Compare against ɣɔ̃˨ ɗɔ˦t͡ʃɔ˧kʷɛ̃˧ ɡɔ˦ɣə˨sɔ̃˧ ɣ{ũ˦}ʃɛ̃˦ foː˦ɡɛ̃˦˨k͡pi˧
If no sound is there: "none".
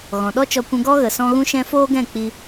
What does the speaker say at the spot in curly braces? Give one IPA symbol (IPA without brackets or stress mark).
ũ˦